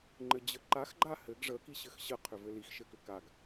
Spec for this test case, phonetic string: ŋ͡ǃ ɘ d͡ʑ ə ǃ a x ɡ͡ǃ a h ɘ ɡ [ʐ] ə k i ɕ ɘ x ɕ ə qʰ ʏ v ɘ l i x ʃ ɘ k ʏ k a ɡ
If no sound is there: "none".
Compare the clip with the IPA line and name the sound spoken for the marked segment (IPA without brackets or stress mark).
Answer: ʐ